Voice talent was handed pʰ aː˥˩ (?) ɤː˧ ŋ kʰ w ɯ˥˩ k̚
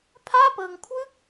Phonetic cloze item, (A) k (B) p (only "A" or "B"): B